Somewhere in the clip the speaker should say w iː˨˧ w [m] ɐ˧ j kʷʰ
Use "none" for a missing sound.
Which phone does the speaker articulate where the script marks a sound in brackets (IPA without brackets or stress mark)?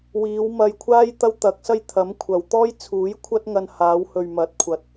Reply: m